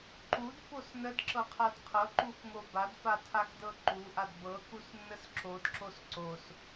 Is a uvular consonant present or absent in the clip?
present